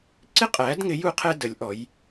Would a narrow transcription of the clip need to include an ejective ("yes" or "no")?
yes